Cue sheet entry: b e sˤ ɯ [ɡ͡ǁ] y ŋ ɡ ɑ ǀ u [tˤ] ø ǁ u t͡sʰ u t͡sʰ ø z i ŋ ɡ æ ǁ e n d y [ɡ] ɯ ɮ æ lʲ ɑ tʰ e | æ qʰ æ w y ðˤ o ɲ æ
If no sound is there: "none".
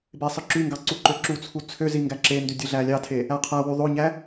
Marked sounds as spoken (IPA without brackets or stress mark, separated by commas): ǁ, ǃ, dʲ